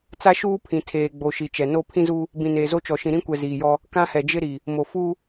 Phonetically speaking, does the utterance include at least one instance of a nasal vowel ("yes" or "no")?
yes